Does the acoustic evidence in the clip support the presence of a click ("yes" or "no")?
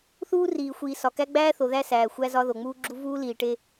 yes